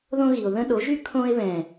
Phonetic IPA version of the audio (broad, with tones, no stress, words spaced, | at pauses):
ðõ˦ɣi˨o̯ ðə̃˦ ɗo˨˦ʒy˦ kʰõ˧e̯βɛ̃˨